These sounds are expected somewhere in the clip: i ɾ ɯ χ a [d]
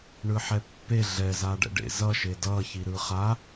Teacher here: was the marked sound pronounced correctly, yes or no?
no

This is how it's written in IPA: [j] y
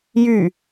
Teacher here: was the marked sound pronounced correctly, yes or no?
yes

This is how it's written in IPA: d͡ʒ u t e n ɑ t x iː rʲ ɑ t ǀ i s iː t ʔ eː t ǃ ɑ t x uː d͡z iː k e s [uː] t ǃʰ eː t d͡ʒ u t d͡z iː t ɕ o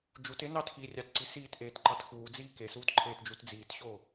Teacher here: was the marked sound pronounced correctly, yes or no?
yes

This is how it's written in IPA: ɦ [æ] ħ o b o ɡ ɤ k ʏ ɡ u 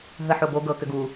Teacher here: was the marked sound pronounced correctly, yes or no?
no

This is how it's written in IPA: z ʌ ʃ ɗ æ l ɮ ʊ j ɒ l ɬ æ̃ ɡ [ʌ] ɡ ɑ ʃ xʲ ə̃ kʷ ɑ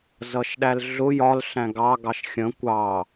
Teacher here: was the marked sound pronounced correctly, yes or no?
no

